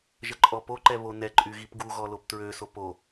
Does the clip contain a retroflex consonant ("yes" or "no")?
no